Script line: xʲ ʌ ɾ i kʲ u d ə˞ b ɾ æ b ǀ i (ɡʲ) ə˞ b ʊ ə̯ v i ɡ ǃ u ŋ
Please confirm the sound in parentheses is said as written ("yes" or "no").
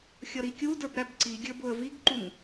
yes